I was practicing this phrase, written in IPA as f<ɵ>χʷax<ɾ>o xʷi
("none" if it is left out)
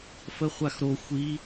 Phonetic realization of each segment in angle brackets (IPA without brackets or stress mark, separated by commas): ə, ɾ